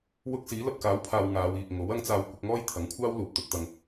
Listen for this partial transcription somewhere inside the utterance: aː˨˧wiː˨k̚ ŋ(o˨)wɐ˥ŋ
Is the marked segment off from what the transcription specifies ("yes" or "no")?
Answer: yes